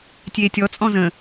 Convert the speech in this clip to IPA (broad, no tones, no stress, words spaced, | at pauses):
tʲeːtʲɔ t͡sʼɔ̃zə̃